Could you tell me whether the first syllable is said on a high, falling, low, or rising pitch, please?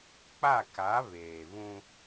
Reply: falling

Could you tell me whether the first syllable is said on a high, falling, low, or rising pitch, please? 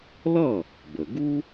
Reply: falling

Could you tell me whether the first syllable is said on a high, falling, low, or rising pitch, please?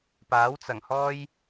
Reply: rising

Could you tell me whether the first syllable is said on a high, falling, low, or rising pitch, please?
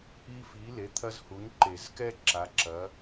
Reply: high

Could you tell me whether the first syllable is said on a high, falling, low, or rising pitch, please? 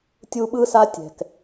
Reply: high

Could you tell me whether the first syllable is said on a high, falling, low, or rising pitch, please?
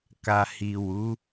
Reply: low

